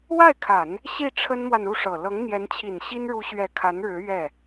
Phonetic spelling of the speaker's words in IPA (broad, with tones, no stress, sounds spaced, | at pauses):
w a˥˩ ɪ̯ kʰ a˨˩˦ n | ɕ i˥˩ ʈ͡ʂʰ ə˥ n m w a˨ n u˥˩ ʂ ɤ˨˩ l ɤ˧˥ ŋ n̪ j ɛ˧˥ n t͡ɕʰ i˨˩ n ɕ i˥ n ɻ u˧˥ ɕ ɥ ɛ˨˩ kʰ a˧˥ n ɻ ɻ̩˧˥ ɥ ɛ˥˩